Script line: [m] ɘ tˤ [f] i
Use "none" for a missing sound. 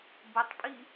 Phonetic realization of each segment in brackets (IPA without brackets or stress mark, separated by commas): b, pʼ